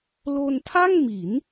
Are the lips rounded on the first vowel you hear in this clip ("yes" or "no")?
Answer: yes